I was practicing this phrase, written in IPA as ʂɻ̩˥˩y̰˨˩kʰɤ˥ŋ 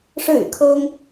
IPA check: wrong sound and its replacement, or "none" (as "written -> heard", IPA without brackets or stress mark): none